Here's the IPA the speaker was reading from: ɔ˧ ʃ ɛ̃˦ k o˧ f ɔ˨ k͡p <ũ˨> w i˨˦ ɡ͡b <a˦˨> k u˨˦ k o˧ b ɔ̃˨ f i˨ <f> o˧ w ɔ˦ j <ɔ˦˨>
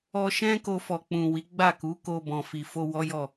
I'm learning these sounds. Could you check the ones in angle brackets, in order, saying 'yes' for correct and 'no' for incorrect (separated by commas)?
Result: yes, yes, yes, yes